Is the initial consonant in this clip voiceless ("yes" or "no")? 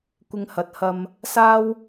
yes